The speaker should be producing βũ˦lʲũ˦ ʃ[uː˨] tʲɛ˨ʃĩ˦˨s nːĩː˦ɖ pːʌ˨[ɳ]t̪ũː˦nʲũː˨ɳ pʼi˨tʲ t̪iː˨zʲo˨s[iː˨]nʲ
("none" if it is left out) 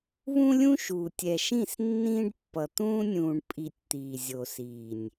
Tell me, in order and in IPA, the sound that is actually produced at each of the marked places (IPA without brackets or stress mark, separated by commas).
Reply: uː˨, none, iː˨